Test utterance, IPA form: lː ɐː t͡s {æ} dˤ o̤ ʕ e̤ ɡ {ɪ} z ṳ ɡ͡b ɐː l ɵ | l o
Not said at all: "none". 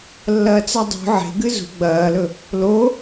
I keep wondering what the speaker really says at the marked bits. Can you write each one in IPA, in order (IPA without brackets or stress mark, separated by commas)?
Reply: a, ɨ